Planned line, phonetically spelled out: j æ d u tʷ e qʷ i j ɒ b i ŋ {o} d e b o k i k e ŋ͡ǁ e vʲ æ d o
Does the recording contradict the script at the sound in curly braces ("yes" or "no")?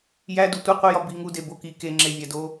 yes